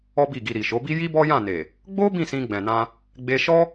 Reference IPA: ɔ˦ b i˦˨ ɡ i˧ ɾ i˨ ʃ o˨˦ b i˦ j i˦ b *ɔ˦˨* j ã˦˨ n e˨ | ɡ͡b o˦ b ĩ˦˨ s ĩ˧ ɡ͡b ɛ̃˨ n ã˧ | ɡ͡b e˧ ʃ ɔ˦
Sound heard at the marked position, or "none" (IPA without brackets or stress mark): ɔ˦